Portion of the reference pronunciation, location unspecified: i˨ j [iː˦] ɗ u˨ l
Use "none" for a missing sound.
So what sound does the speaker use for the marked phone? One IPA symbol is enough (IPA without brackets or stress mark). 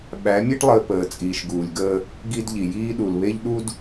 iː˦